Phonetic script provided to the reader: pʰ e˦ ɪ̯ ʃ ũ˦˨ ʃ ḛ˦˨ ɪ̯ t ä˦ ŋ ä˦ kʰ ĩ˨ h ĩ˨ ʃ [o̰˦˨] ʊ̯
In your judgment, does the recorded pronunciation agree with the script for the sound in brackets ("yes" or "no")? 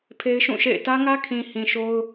no